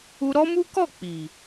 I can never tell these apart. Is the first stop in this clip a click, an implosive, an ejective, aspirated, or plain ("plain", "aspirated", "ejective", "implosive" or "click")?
plain